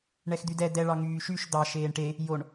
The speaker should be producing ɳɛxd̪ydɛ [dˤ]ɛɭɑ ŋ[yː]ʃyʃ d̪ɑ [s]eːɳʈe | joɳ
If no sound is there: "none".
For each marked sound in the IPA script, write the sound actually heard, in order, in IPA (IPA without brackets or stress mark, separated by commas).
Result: d̪, yː, ʃ